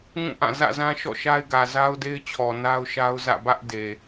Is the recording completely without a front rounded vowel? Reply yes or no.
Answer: yes